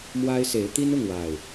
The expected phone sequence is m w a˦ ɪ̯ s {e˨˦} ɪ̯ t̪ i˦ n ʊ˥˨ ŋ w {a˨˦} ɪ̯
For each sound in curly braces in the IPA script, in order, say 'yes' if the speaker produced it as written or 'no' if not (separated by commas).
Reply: yes, no